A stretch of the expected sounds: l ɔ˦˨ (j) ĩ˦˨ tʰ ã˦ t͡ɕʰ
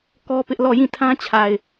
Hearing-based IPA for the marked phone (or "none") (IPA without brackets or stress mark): j